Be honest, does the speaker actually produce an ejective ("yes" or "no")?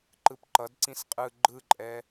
yes